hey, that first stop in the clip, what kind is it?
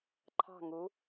click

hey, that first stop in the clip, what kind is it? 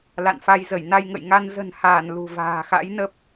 plain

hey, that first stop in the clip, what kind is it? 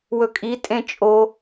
ejective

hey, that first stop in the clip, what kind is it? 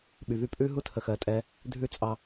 implosive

